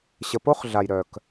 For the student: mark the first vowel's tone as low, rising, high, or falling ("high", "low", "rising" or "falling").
low